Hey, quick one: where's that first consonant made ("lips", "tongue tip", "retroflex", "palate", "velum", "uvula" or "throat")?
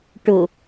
retroflex